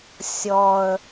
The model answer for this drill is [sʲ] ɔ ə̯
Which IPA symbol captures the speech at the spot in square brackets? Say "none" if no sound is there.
sʲ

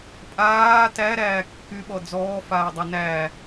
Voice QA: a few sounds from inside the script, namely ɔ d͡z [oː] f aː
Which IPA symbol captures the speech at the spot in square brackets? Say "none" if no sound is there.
ɔː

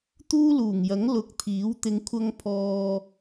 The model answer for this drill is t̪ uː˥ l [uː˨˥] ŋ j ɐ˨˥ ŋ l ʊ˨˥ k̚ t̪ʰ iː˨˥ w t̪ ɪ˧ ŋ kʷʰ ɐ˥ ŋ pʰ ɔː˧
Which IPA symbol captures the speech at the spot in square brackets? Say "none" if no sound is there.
uː˨˩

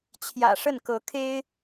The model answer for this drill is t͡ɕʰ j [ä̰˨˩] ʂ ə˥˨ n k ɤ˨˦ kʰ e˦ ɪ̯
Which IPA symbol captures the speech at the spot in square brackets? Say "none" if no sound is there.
ä̰˨˩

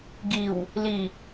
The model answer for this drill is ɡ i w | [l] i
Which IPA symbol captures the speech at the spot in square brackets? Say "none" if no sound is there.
l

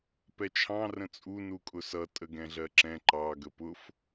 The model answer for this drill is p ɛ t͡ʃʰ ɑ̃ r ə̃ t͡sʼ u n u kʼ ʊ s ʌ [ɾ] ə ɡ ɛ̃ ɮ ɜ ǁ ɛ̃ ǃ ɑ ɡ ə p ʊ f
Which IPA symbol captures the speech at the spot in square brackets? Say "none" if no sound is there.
tʼ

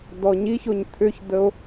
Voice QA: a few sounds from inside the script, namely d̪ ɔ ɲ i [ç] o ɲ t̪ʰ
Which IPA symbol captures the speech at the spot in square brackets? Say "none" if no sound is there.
ç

